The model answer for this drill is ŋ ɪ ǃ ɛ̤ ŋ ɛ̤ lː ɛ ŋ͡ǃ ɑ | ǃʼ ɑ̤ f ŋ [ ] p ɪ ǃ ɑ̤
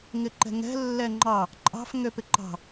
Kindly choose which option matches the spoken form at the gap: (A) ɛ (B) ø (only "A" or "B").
B